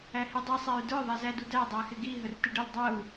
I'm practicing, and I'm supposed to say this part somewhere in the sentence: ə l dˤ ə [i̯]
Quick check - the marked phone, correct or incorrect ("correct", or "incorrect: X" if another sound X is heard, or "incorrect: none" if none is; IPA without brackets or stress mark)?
incorrect: u̯